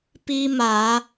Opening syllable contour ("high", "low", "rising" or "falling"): high